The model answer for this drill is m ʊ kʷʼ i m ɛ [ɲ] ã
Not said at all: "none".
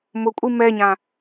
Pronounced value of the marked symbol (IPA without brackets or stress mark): ɲ